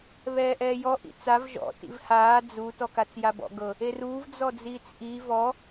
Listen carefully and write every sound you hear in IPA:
βɛːʔɛːjɔ ʔḭt͡sav ʒɔ̰ tḭvhaː d͡zu tɔkat͡sjabɔ̰ ɡɤ | eruːv d͡zɔd͡ziːt͡sʔi vɔ

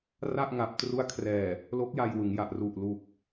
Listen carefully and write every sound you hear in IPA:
ra˥˩ʔŋa˨˩p̚tru˦˥a̯ kʰrɛː˨˩ | lo˦˥k̚ja˧jwɯ˩˦ŋ ja˨˩ʔru˨˩ʔlu˨˩k̚

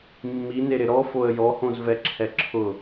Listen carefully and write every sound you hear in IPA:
mːineɾɪ ɾɔfoə̯ jɔhõzvɛǁʰɛ ǁʰʊ

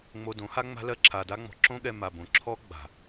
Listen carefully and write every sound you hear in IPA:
ŋ͡mo˧dõ˨˦ ha˦ ŋ͡ma̤˦lɜ˦ ǁʰa˧da˦ŋ͡mɔ̤˧ ǁõ˦ɠɛ˧ ma˨bõ˨ ǁʰɔ˦ ɡ͡ba̤˨

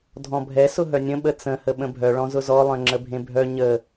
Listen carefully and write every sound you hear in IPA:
dʱɔ̃bʱɛ sʊɦœnʲə̃ ɓət͡sə̃ həɓə̃bʱœ ɭɔ̃zʊzɔ lˠœ̃ŋ͡ǁəbʱẽbʱœ ɲə

